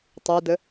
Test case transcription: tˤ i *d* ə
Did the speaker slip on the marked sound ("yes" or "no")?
no